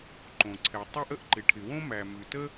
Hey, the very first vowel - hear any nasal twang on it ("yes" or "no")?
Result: yes